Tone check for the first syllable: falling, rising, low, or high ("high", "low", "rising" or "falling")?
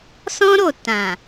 high